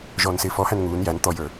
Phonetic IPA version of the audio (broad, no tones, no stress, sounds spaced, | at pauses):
ʒ ɔː n s ɪː f ɔ h æ n ŋ uː n j æ n t̪ ɔ j ə˞